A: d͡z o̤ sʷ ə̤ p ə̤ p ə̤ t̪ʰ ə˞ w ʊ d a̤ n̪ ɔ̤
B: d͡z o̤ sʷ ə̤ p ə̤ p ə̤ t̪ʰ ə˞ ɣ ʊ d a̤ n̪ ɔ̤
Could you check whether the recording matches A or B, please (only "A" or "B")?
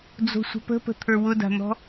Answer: A